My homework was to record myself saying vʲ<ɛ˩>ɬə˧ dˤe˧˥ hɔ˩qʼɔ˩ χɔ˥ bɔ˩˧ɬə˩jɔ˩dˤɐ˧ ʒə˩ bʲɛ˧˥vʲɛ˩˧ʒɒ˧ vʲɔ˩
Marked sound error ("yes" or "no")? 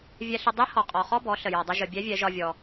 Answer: yes